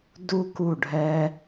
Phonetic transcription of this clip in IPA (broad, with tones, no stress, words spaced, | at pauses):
du˦ ku˦˨ ɖʱɛ˧